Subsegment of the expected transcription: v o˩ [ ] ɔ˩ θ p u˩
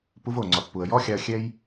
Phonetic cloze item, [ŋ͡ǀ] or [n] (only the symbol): ŋ͡ǀ